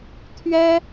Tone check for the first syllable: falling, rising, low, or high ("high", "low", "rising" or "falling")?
high